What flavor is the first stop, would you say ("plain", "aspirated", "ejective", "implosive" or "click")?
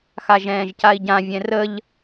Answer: plain